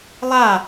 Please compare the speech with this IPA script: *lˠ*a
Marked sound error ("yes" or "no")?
no